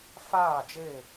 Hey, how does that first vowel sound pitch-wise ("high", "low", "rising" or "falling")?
falling